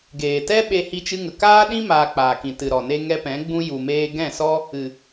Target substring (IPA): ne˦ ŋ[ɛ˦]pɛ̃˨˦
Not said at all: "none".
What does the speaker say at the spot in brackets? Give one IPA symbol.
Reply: ɛ˦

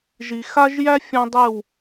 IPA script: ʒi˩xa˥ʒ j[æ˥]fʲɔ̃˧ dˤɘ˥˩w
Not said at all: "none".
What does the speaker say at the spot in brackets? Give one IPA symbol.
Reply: æ˥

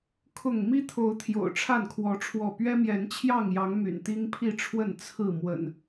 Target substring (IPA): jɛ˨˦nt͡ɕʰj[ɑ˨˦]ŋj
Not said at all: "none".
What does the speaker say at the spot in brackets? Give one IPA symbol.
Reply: ɑ˥˨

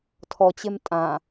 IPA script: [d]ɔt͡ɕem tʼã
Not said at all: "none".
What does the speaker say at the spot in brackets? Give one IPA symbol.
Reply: tʰ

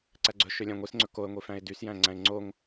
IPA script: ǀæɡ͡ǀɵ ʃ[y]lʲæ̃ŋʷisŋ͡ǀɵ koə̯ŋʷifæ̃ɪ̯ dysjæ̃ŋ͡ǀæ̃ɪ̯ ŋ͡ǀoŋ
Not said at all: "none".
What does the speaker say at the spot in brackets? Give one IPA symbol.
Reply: ø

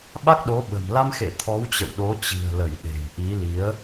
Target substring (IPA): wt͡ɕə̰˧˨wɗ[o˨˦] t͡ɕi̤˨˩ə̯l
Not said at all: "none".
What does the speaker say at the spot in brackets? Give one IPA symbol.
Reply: o˨˦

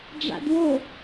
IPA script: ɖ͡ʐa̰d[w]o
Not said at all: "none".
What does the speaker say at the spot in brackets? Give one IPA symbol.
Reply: w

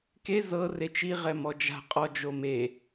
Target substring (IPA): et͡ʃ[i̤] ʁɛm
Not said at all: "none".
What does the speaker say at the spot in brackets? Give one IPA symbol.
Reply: i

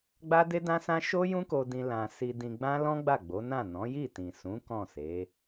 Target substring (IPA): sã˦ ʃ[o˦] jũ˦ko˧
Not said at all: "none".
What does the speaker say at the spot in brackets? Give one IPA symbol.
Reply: o˦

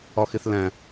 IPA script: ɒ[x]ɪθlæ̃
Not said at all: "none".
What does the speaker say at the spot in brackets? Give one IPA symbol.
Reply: x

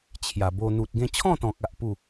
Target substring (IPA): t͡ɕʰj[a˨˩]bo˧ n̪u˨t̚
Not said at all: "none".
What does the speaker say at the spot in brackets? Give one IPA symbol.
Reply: a˨˩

